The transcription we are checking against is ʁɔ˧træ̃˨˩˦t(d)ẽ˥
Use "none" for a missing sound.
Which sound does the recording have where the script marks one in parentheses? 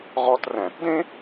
d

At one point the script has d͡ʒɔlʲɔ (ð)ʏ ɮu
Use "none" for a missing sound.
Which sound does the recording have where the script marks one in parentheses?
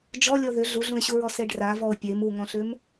ð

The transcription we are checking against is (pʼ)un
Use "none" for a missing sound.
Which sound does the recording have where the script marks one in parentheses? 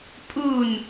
pʼ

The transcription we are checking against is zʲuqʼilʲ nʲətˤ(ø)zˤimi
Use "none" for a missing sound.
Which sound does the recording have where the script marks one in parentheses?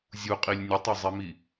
ø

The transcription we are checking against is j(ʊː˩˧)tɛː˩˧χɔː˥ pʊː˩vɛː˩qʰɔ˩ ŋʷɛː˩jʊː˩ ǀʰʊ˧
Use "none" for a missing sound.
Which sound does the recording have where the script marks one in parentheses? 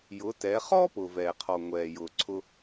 ʊː˩˧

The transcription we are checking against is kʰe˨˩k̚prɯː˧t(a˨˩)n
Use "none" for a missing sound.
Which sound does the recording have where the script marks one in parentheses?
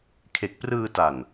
a˨˩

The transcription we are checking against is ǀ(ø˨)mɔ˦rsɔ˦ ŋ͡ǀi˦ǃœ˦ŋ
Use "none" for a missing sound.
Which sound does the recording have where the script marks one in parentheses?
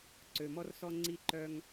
ø˨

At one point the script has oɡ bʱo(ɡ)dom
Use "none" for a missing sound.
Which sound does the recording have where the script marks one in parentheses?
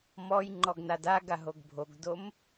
ɡ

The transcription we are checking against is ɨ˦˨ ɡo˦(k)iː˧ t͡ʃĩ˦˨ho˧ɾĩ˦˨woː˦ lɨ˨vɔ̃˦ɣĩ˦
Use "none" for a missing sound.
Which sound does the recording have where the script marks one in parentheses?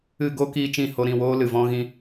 k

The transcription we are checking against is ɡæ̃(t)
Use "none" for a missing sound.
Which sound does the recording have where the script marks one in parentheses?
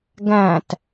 t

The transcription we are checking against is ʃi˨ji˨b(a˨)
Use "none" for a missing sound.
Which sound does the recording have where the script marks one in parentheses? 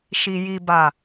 a˨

